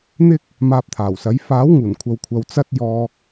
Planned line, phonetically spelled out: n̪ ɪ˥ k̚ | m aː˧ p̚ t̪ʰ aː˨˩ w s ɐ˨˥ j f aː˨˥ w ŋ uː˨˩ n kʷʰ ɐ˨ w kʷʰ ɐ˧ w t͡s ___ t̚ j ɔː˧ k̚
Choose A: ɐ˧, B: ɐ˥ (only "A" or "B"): B